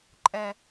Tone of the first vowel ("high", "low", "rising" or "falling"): low